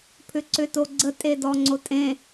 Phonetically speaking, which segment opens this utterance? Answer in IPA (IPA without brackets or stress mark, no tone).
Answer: pʰ